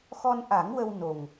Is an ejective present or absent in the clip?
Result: absent